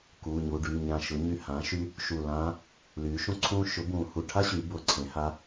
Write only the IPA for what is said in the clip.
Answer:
kuː˩˧˩ɲu˩˧˩ɖyː˩˧˩ ɲã˧˩ʃʊ˩˥ ɲy˧˩hãː˩˥ʃy˧˥ | ʃu˧˩ lãː˧˥ | lyː˩˥ʃũ˥ǀʰũː˥ ʃʊ˩˥ bũː˨˩˦ hu˩˧˩ʈʰa˥ ɕyː˩˥bʊː˨˩˦ǀʰẽ˩˥ ha˧˥

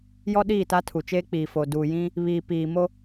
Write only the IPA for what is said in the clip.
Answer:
jɔ˦ɗiː˦˨ta˦tʰu˨ t͡ʃeː˦k͡piː˨ fo˨ duː˨jĩ˦ | βiː˨piː˨mo˦

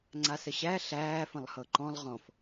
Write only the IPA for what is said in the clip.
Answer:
ŋ͡ǀasəɕæ ɬæː fə̃lˠhɤǃɔ̃lˠ ʁɔ̃f

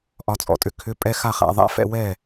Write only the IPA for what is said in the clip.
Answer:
ʔɒ˩˧ t͡sʼɔ̰˩tʼʏ˩kʰʏ˧˥˧ pʼɛ˧˥˧xa˥˩χa̰˩˧ ðˤa̰˧˥˧fɛ̰˧˥˧wɛ˥˩

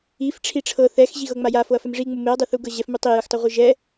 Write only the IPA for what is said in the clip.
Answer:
if ʈ͡ʂʰiʈ͡ʂʰɤ θɛxʑi ɣɤŋ͡maja foɐ̯fɛmʐiŋ͡mu meɐ̯dˤe θuɡɤʑɛf mutˤijɯxtˤu ʁʷɯʒɛ

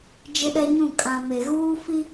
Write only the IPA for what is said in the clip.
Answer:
d͡ʒɪ˦ɗɛ˦ɲũ˦˨ kʼã˨me˨ ɣuː˦ fi˦

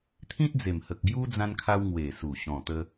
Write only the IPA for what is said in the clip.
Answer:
t̪ʰĩ˦t̚d͡ze˨˩mhə˨k̚ɡju˦ d͡zã˦nkʰa˦w ŋwe˨˩su˨˩ ɕɔ̃˨˩t̪ə˧

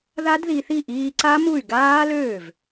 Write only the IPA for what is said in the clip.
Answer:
ða˦˥dði˧θi˥˩ ʔiː˧ǀa˦˥mu˥˩y̯ ɡaː˦˥løː˥˩v

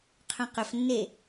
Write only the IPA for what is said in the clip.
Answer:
qʰœ̃qɵfnːe

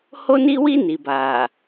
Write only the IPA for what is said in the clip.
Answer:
ho˦ni˦wi˦ ni˨baː˨

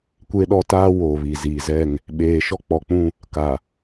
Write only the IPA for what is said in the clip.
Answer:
kʷe˦ɗɔ˦ taː˦ wo˨ βi˨ziː˨ zɛ˦˨ŋ | ɓeː˨ʃɔ˦k͡pɔ˨k͡pũ˦˨ | ka˨

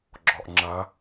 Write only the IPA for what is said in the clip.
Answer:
ɡ͡ǁɔʔŋ͡ǁɐ

